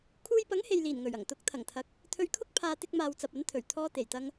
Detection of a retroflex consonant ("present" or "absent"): absent